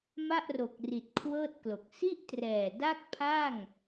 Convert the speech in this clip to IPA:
m a˥˩ ʔ r o˨˩ k̚ r i˨˩ t̚ kʰ w ɤː˥˩ t̚ k l o˨˩ k̚ s i˥˩ ʔ t r ɛː˨˩ d a˥˩ k̚ pʰ a˥˩ ŋ

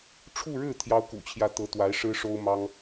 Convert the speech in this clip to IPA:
ʈ͡ʂʰ u˥˧ ɻ ɻ̩˥˩ t̪ʰ j ɑ˥ ʊ̯ k ṵ˨˩ t͡ɕʰ j ä˥˩ t̪ ɤ˧˥ t̪ w a˧˥ ɪ̯ ʂ ɻ̩˥ ʂ o˥ ʊ̯ m ɑ˥ ŋ

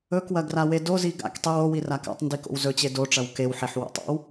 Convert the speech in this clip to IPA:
ɵ k w ɐ ɡ r a w e d o z i ɡ a̰ k tˤ i w o w i r a k a̰ tˤ n d i k o̰ w z ɵ t͡ɕ e d o ʈ͡ʂ ɐ w k e w ħ e ħ w o̰ tˤ o̰ w

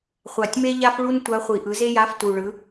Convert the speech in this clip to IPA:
χʷ a˨˩ tʲ m e˥ ʎ a˥ f ɭ u˥ n tʷ a˧˥ χʷ i˨˩ ʔ ɯ˩˥ z e˥ j a˧˥˧ f t u˨˩ ɭ ɯ˩˥

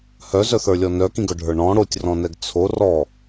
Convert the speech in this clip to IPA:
h œ z œ θ ə˞ lʲ ɔ n œ k ĩ ɡ œ ɖʱ ə˞ ɳ ɔ̃ ɽ o tʲ r ɔ̃ n ɛ ɡ t͡sʰ o r ɔ

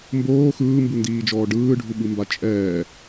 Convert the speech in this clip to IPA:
m b oː x ɯː m b u n d iː d͡ʒ ɔː ɖ ɯː ɖʱ u ɓ ɯ m b a t͡ʃʼ ɛː

